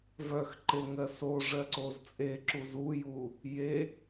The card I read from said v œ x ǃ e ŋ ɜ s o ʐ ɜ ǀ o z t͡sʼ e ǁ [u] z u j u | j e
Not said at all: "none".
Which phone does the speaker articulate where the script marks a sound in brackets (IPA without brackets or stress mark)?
u